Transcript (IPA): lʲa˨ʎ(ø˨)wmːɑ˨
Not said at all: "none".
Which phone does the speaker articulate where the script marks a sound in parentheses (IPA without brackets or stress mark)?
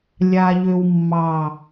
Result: ø˨